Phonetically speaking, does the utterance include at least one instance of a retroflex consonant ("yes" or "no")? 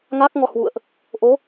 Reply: no